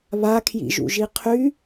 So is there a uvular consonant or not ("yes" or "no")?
yes